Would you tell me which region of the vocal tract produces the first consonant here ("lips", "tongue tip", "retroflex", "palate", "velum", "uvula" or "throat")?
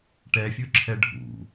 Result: retroflex